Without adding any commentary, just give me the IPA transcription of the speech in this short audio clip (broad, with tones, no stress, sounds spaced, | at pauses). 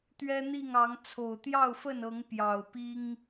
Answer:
t̪ ɥ ɛ˦ n̪ i˥˨ ŋ ɑ˨˦ ŋ t͡sʰ o˨˩ ʊ̯ t̪ j ɑ˥˨ ʊ̯ f ə˥˨ n ɤ˨˦ ŋ p j ɑ˨˩ ʊ̯ p i˦ ŋ